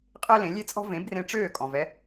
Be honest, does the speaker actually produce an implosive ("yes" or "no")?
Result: no